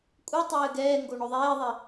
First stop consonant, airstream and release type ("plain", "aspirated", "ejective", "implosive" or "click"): ejective